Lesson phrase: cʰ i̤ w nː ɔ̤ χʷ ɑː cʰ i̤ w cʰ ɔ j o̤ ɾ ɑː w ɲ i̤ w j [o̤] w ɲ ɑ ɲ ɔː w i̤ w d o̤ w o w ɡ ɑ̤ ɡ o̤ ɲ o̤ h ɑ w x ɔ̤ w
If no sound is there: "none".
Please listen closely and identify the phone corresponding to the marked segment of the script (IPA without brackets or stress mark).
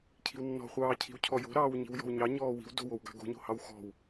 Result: ɔ̤